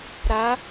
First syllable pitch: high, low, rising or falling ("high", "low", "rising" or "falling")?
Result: rising